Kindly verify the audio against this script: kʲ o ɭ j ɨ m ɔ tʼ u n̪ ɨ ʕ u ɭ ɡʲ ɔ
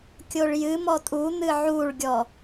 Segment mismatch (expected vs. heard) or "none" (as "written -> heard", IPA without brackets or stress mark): none